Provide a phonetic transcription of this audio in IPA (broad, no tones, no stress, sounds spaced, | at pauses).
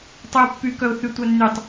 tˤ y ʊ̯ pː y k œ ʊ̯ θ y tʷ œ nː y tˤ